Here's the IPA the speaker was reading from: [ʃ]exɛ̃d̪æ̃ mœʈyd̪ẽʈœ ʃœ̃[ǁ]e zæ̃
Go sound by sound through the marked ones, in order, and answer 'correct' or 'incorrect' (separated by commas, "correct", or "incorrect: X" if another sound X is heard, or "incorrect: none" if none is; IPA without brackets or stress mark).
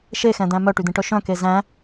correct, incorrect: k